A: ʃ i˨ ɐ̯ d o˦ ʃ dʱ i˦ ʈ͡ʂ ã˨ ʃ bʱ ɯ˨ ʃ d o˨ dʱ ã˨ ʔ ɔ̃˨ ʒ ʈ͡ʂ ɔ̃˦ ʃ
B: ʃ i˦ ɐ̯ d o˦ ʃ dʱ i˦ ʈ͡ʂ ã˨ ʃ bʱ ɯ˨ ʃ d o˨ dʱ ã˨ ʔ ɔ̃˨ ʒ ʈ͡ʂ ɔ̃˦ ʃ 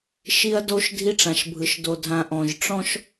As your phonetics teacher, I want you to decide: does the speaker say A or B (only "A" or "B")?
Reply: B